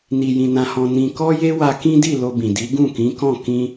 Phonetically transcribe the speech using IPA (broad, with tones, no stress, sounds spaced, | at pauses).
n i˧ j ĩ˧ n ã˧ h ɔ̃˧ n ĩ˧ k ɔ˦ j e˦ w a˧ k ĩ˦ d i˦˨ l o˧ b ĩ˨ d i˨˦ ɡ ũ˦˨ k ĩ˨˦ k ɔ̃˦˨ k ĩ˧